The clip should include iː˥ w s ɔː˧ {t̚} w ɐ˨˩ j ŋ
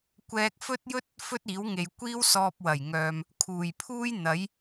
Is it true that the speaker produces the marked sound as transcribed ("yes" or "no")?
no